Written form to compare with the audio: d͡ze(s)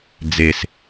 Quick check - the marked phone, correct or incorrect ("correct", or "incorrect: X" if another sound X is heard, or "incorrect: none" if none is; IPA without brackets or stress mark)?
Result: correct